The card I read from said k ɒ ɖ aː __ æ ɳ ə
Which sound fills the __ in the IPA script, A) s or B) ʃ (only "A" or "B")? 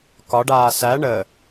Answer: A